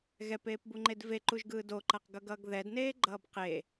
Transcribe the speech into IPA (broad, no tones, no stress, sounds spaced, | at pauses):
ɣ ɛ p eː p b u ŋ͡ǃ e d v e ǃ u ʒ ɡ ɯː d o ǃ a q ɡ ʌ ɡ ʌː ɡ ð ɛ d n eː ɡ͡ǃ ʌː b q e